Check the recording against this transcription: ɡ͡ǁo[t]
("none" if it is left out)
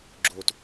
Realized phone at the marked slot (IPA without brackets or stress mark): t